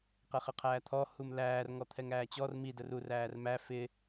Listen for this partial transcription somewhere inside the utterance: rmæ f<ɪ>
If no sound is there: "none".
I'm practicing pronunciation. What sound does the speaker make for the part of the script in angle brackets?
ɪ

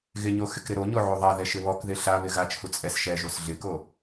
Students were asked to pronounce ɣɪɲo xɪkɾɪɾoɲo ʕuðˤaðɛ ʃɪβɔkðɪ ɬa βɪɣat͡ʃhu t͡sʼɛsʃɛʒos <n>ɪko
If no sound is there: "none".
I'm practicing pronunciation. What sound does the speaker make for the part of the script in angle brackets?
ɮ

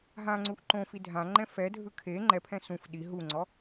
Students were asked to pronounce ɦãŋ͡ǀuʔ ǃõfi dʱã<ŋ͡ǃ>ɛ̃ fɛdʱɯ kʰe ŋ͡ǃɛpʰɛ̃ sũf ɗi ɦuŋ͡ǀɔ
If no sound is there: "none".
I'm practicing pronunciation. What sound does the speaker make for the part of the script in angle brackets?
ŋ͡ǃ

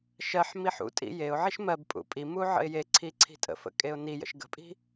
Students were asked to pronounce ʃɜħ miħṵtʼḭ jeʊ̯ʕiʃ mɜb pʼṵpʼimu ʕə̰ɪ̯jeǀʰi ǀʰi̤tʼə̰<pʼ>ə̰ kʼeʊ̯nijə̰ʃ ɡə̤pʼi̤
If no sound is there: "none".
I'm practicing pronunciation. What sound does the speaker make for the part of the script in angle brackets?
f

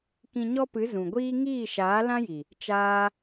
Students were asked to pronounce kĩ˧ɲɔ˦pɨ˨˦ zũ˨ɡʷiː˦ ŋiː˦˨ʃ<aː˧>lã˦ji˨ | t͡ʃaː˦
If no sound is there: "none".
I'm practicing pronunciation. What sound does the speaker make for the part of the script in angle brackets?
aː˨˦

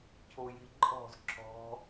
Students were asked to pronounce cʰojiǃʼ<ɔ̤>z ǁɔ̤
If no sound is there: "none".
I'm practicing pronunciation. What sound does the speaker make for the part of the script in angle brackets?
ɔ̤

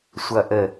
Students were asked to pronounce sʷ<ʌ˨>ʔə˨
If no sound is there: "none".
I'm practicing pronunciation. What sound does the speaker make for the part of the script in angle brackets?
ʌ˨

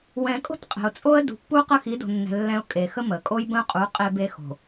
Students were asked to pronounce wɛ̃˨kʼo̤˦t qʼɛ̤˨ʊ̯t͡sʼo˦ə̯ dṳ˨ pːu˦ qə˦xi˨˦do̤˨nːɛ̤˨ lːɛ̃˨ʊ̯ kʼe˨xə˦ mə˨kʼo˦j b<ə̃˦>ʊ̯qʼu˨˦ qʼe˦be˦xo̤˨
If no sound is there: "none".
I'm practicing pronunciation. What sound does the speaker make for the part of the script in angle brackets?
ə̃˦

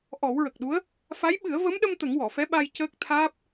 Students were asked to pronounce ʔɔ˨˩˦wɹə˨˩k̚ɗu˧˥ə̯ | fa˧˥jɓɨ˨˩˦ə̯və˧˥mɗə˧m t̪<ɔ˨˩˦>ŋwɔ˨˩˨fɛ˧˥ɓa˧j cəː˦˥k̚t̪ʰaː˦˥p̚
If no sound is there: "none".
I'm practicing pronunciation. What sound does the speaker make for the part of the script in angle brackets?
ə˨˩˦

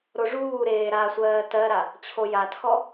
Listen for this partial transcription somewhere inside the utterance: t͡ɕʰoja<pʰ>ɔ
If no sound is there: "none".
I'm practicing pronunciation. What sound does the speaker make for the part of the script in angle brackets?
tʰ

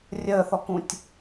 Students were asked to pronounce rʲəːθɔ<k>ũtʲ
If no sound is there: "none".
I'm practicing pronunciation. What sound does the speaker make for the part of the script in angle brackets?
k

